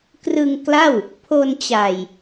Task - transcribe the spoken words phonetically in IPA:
krɯ˧ŋ kla˥˩w | pʰo˧n t͡ɕa˨˩j

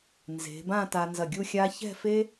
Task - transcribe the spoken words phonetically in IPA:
nze̤˩˧bã˥˧ ta˧nzɐ˧˩ɡʲu˥˧xʲa˥ çɛ̤˥˧fe˥

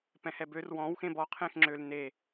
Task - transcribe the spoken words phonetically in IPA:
pɛ̃hɛbør wɔ̃w xẽbɔ qʰẽxŋ͡ǁøl ne

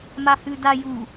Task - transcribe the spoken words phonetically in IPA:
mahʉda ju

